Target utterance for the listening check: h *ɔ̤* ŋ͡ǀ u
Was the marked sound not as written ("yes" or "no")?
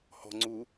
no